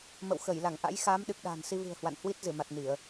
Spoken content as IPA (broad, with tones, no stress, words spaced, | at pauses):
mə̰˧˨wxə˧˩j la˧˩ŋʔa̰˧˥jxaː˨˦m ɗɨ˨˩k̚ɗa̤ː˨˩nsi˧vɨ̤˨˩ə̯ hwa̰˧˨nhwi˦˥t̚zɨ˧˩ma˨˩t̚ ni˧˩˨ə̯